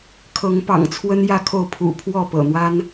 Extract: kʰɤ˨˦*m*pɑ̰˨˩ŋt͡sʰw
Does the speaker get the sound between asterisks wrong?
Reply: yes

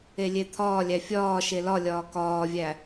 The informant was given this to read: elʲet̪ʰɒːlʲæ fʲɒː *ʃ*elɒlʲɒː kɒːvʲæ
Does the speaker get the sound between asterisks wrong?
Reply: no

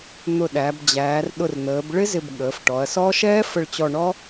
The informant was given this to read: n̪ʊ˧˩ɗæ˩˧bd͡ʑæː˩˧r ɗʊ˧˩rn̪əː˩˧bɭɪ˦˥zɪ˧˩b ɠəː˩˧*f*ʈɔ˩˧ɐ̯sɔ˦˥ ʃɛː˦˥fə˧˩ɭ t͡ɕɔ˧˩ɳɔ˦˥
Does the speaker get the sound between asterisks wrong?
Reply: no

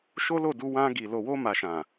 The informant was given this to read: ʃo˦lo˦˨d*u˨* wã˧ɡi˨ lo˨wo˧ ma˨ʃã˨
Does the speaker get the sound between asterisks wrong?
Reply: yes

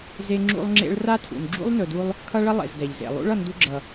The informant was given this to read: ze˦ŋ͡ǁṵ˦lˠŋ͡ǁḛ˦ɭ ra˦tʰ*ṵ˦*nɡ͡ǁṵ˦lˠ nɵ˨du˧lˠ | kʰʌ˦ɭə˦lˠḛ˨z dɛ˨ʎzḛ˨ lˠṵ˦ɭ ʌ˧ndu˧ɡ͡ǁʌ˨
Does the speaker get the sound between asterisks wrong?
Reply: yes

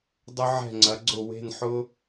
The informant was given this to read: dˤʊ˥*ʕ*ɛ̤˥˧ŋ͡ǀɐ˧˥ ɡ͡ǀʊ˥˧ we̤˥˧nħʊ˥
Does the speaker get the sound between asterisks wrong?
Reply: no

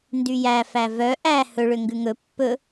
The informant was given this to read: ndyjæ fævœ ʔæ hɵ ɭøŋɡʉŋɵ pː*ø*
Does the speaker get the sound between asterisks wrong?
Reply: yes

